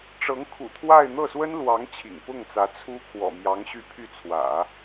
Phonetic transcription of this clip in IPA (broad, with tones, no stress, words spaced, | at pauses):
ʈ͡ʂɤ˧˥ŋkʰṵ˨˩t̪ʰwa˥˧ɪ̯ n̪ɤ˥˩swə˥nlwɑ˧˥ŋ t͡ɕʰḭ˨˩ŋpʊ˥˩ŋt͡sä˧˥ t͡sʰu˥ kʰwɔ̰˨˩mjɑ˧˥ŋ ɕy˥˧ pʰy˥˩t͡sʰwä̰˨˩˦